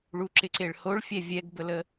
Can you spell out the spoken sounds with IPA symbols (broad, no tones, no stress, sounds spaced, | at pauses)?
ɭ u ǁ ɪ ǀ e ɭ h o ɭ fʲ ɛ vʲ ɛ ɡ b ə l ə